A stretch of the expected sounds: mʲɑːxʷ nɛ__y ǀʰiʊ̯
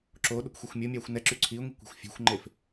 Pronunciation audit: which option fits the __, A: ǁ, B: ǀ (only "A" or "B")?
A